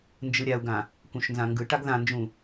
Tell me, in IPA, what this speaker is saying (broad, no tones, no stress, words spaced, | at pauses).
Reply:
nd͡ʒɯɾʲau̯ɡã | kũʃnzãŋɡɯʈaɡ ðãnd͡ʒũ